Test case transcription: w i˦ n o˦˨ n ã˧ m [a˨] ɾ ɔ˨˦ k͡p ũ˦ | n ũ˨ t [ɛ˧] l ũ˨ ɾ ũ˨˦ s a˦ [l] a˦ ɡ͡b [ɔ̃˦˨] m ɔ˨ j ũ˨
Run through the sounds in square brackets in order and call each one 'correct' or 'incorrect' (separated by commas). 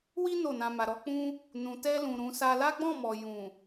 correct, correct, correct, correct